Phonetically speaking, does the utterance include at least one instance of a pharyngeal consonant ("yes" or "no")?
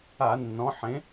yes